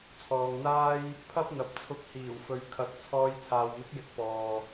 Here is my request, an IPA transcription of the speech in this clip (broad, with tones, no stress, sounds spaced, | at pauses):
t͡sʰ ɔː˨ ŋ n̪ aː˥ j | pʰ ɐ˥ p̚ n̪ ɐ˨ p̚ t͡sʰ ʊ˧ k̚ h iː˨˩ w f ɵ˨ ɥ kʰ ɐ˨˥ k̚ t͡sʰ ɔː˧ j t͡sʰ aː˨ w m ɪ˨˥ k̚ j ɪ˨˥ k̚ p ɔː˨